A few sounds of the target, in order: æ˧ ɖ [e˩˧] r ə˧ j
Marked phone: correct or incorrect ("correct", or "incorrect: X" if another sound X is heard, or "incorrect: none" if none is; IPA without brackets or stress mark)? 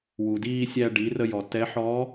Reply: incorrect: i˩˧